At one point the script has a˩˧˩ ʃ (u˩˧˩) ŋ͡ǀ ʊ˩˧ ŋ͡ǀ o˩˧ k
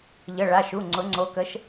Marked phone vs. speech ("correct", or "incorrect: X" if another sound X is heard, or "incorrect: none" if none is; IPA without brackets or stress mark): correct